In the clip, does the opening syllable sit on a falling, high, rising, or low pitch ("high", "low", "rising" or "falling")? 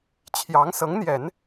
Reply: rising